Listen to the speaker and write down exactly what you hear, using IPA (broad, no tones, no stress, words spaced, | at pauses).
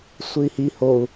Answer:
sʷɨi̯hi hou̯